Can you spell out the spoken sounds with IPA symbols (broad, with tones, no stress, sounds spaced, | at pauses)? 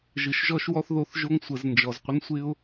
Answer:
ʒ ɯ˨ ʃ ʒ ɔ˧ ʃ w ɔ˧ θ ð o˧ θ ʒ o˦ ŋ sʷ ə˨˦ z n d͡ʒ ɔ˨ z qʷ ɪ˦ n sʷ ɪ˦ ʊ̯